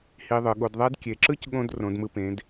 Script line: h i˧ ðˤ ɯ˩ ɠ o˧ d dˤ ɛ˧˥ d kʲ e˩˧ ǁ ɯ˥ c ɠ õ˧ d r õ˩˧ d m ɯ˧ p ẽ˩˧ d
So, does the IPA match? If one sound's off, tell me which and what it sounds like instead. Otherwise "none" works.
dˤ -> ðˤ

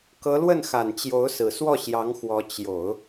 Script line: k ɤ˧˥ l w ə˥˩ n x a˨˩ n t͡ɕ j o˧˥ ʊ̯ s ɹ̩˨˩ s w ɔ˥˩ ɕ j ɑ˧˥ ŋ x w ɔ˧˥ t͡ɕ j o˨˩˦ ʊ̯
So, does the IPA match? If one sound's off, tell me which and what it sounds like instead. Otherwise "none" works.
none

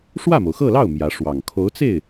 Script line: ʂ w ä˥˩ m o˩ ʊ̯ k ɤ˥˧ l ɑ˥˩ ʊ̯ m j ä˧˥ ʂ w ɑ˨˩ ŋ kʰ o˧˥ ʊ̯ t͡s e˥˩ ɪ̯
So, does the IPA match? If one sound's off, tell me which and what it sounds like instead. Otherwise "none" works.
k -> x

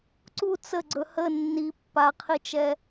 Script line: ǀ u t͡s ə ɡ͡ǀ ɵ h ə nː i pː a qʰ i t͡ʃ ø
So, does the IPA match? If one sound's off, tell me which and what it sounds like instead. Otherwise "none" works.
ø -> ɛ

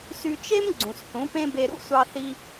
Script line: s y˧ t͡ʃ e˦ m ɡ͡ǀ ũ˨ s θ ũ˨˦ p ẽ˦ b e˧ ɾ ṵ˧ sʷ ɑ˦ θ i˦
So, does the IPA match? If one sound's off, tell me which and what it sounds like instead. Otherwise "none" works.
none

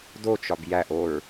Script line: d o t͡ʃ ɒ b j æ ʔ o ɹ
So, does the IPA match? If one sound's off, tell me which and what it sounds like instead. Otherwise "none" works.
none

